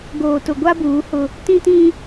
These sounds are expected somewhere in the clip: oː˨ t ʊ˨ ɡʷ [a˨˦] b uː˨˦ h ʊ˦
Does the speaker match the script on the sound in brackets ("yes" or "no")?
no